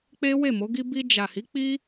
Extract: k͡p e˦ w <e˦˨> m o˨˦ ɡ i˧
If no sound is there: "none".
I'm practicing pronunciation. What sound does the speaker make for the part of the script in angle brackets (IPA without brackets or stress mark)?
e˦˨